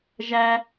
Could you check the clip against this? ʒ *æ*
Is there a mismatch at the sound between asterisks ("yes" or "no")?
no